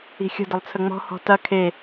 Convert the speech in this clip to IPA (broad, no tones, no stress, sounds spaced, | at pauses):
i̤ xʲ ə̤ d ə lˠ t͡sʰ ə ŋ͡m ɔ̤ h ɔ̤ t ɐ kʰ e